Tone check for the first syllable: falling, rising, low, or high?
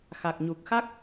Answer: low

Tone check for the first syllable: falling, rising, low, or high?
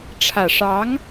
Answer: low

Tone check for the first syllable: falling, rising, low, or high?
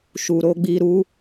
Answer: low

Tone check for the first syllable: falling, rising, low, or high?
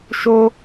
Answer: high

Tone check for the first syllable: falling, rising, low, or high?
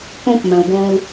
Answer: high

